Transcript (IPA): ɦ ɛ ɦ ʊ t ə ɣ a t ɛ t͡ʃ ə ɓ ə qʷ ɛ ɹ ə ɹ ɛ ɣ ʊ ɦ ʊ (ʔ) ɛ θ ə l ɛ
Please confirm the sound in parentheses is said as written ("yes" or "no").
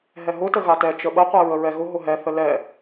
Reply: no